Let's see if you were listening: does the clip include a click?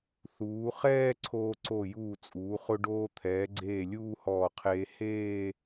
yes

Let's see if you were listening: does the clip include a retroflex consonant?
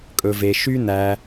no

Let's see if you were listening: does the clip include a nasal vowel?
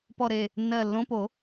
yes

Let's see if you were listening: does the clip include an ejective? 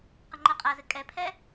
yes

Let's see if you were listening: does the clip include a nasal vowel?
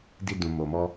yes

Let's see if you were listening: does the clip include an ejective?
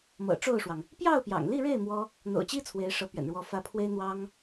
no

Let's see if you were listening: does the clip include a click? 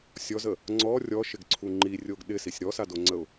yes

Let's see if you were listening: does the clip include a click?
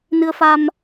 no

